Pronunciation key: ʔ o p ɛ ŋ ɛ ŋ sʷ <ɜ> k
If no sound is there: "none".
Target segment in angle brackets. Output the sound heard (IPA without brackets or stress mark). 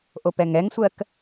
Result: ɜ